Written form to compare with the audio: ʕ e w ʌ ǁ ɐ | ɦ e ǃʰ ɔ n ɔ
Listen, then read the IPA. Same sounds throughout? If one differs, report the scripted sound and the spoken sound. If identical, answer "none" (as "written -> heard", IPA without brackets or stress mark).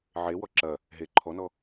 ʌ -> ɔ